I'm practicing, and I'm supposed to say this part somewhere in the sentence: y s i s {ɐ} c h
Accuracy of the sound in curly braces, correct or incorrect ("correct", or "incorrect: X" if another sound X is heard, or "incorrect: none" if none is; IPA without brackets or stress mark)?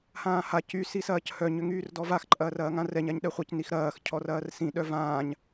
incorrect: ɐː